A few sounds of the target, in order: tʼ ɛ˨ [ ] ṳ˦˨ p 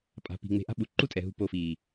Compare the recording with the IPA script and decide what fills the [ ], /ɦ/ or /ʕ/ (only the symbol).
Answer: ɦ